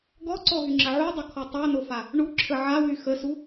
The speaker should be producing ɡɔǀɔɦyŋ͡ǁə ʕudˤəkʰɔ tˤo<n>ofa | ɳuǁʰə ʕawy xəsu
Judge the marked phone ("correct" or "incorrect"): correct